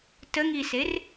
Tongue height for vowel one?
mid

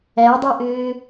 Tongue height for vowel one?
low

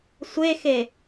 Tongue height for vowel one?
mid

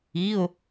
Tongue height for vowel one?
high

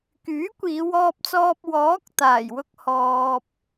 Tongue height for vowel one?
high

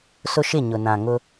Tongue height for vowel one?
high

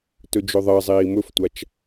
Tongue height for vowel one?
mid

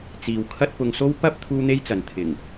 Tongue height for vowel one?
high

